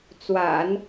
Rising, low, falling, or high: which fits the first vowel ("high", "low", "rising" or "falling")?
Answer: low